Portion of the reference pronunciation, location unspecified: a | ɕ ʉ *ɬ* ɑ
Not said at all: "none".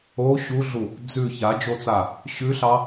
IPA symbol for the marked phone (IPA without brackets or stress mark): ɬ